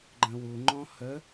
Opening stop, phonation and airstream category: click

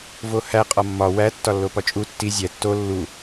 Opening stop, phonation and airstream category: ejective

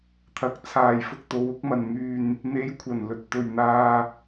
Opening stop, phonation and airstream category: aspirated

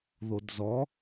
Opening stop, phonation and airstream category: plain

